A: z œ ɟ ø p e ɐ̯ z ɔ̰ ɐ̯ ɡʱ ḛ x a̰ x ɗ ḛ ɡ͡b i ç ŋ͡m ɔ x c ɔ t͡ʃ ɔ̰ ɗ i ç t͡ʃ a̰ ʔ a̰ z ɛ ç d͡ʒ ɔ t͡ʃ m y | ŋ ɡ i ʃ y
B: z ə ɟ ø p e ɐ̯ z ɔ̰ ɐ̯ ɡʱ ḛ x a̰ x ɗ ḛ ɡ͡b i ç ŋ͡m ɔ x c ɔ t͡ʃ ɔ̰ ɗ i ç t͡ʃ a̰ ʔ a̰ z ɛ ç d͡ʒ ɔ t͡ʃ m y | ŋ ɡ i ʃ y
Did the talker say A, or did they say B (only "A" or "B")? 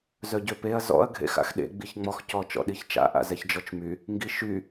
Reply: A